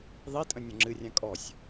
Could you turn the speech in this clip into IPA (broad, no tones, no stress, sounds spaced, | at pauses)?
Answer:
ðˤ i tʼ ə̃ nʲ ɔ̃ ŋ͡ǁ ɨ rʲ ã kʼ ɔ sʲ